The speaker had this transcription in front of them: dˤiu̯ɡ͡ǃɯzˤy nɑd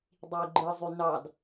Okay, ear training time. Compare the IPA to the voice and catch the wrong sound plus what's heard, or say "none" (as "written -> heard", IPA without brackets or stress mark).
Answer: none